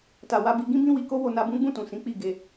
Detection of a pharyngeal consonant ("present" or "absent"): absent